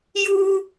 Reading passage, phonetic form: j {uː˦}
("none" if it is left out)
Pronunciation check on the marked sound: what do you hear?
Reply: uː˦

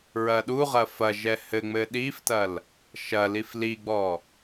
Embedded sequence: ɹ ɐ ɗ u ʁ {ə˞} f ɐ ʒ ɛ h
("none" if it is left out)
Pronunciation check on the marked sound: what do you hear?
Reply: ɐ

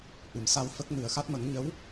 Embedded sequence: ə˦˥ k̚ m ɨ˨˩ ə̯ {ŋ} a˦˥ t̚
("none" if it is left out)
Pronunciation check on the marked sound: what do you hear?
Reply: x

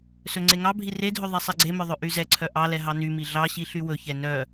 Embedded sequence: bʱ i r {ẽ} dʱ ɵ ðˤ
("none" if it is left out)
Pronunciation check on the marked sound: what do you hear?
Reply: e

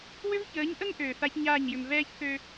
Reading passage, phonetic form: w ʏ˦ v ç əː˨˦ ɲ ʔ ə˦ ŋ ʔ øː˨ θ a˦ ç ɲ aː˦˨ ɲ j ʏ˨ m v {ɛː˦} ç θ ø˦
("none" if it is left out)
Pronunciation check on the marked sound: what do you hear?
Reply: ɛː˦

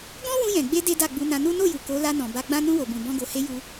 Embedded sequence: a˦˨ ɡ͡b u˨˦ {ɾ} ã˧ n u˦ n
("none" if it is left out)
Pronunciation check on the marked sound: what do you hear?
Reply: n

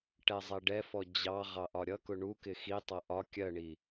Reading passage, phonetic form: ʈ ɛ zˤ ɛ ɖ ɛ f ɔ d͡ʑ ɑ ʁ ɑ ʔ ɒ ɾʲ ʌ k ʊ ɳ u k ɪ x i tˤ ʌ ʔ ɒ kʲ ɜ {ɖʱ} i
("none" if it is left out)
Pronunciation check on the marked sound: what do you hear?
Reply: ɳ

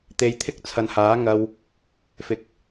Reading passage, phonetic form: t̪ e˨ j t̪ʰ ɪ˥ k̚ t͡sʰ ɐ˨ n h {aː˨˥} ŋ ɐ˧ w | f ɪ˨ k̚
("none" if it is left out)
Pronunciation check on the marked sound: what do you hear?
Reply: aː˨˥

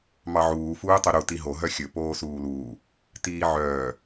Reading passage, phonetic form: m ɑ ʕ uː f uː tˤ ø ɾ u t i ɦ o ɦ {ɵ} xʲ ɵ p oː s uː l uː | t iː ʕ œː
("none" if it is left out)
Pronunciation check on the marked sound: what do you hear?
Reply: œ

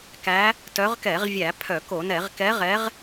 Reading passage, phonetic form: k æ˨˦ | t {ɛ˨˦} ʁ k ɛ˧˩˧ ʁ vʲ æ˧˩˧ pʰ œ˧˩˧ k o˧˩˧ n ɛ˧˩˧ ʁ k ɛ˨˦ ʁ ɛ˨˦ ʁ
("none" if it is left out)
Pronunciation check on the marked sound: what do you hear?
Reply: œ˨˦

